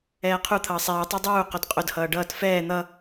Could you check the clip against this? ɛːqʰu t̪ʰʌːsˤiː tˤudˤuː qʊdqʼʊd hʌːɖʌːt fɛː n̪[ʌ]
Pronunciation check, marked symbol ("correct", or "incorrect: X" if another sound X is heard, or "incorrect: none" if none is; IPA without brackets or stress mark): correct